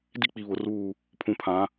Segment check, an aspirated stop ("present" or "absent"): present